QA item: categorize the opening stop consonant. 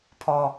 aspirated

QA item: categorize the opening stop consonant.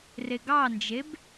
plain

